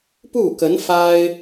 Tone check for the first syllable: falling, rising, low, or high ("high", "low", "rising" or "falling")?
falling